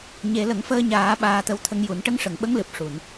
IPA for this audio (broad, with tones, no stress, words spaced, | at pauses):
ɲe˨˩˦lə˨˩˦ŋfəː˧ɲaː˨˩˦ ɓaː˧t̪ə˧wt̪ʰə˧˥ŋju˨˩˦n ʈə˧˥ŋʂə˨˩˨ŋɓə˧˥ŋlɨ˨˩p̚ ʂu˨˩˨n